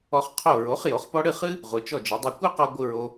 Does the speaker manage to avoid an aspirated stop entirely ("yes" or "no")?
no